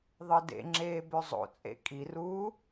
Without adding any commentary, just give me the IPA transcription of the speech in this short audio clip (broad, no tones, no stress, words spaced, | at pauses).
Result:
ðˤɯdḛŋ͡ǁeː bøzˤo̰t͡sʼḛ kʼiruː